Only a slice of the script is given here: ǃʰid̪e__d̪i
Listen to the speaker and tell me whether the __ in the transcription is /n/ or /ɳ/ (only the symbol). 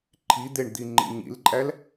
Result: ɳ